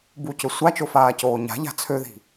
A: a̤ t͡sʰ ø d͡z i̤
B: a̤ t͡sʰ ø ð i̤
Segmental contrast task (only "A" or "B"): B